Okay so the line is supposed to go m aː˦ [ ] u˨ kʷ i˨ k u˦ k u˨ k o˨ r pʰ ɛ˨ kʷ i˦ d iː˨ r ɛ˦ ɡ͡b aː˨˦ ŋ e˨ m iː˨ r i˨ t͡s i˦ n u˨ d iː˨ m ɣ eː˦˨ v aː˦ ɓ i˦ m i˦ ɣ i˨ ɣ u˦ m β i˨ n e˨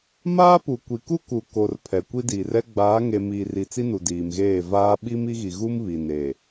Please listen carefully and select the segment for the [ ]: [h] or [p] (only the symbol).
p